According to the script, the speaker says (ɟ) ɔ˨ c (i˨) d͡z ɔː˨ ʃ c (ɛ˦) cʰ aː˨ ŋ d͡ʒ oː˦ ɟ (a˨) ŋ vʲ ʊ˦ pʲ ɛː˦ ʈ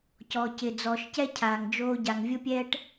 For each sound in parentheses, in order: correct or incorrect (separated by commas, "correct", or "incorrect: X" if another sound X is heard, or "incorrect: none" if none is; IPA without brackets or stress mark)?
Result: incorrect: c, incorrect: ɪ˨, correct, correct